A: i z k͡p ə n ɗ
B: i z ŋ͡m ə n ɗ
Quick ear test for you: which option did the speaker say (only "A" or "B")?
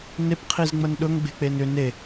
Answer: B